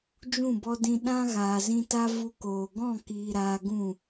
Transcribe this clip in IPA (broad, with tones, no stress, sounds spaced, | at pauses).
d͡ʒ ũ˦˨ b ɔ˧ d ĩ˧ ɗ ã˦ ɣ aː˨ z ĩ˧ t a˦ v u˧ k oː˨ ɡ ɔ̃˦˨ k iː˨ ɾ aː˧ ɡ ũ˦˨